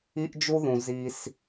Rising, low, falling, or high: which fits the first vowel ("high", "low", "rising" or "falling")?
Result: high